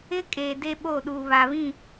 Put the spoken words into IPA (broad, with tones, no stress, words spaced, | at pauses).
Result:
ɪ˦kʼeː˨ de˦ɓo˦˨ɗuː˨ βa˨βĩ˦˨